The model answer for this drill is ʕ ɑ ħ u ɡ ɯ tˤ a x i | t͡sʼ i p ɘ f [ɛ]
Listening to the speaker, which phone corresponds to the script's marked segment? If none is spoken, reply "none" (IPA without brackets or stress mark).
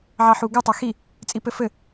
ɘ